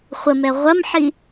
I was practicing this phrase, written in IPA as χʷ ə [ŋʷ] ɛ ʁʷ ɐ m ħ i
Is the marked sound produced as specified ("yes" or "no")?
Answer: no